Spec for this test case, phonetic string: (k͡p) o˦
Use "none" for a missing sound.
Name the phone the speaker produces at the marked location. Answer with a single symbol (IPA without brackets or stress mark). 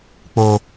k͡p